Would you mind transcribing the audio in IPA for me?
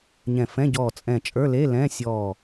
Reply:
ɲ ɛ̃˧˩ f ɛ̃˧˥˧ ɟ ɔː˧˩ t͡sʼ ɛ̃˧˩ t͡ʃʼ ə˞˧˥˧ l e˧˥˧ l ɛ̃ː˧˥˧ sʲ ɔː˧˩

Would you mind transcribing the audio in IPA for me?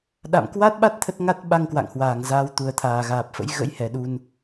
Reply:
ɗ a̰˧˨ m k w a˦˥ t̚ ɓ a˦˥ t̚ t̪ʰ ə˦˥ t̚ ŋ a˦˥ t̚ ɓ a˧ ŋ k w a̰˧˨ ŋ h w aː˧˩ ŋ z aː˨˦ w t̪ u˨˩ ə̯ t̪ʰ aː˨˩ ɣ aː˨˩ p̚ f ə̰˧˥ j ɣ ə̰˧˥ j h ɛ˨˩ ɗ u˧ n

